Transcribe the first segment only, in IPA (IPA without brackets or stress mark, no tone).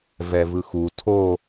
v